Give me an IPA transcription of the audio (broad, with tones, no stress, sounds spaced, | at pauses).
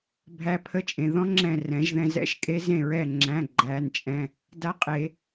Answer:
bʱ æ˧˥ pʰ ə˧˥˧ t͡ʃʼ ẽ˩˧˩ ð ɔ̃˧˥ ŋ͡ǁ ɛ̃˧˩ r ɛ̃˨˩˦ ʒ ð ɛ̃˧ z ɛ̰˧˥˧ ʃ kʼ e˧˥ z ẽ˧˩ ɹ ɛ˧˩ ŋ͡ǁ æ̃˩˧˩ ɡ͡ǃ æ˩˧˩ n t͡ʃʼ ɛ̃˩˧˩ | d a˧˥ qʼ e˨˩˦